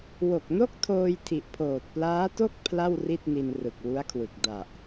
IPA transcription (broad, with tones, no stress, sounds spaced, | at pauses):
w o˨˩ k̚ n o˥˩ k̚ tʰ oː˧ j tʰ i˨˩ ʔ pʰ oː˨˩ t̚ p l aː˦˥ t o˥˩ k̚ pʰ l a˥˩ w r i˥˩ t̚ n i˧ n r ɯ˨˩ k̚ w u˦˥ a̯ kʰ w ɯ˨˩ k̚ d a˨˩ ʔ